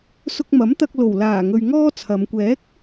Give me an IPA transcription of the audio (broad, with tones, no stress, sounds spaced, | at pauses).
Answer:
s ʊ˧ k̚ m ɐ˨˥ m t̪ ɐ˧ k̚ l o˨˩ w l aː˨˩ ŋ ɵ˨ ɥ ŋ ɔː˥ t͡sʰ ɐ˨˧ m kʷ ɛː˨˥ k̚